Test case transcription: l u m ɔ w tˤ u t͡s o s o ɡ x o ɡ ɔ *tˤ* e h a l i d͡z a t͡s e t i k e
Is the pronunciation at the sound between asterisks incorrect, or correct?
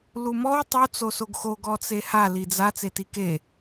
incorrect